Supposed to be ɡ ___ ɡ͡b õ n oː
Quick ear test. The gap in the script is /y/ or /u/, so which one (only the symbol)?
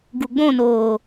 u